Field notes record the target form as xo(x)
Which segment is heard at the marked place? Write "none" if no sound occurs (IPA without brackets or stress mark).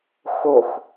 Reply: x